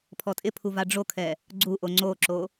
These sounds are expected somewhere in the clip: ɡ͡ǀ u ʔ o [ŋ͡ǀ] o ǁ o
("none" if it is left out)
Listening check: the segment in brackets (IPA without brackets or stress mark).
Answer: ŋ͡ǀ